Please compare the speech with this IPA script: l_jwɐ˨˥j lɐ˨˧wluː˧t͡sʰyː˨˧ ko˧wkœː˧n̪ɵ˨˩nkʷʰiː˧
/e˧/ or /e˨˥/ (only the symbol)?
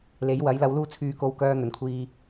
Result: e˨˥